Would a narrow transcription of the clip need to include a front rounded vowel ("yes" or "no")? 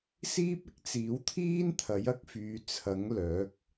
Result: yes